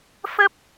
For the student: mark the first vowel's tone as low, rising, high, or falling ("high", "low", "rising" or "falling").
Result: high